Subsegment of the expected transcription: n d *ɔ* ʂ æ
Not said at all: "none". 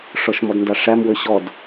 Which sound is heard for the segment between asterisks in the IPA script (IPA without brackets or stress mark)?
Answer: ɑ